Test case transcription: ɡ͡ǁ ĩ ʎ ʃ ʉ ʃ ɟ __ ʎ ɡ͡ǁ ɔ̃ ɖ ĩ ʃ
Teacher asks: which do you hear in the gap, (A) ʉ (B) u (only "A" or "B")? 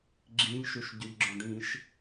A